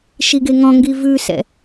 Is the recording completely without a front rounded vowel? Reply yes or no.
yes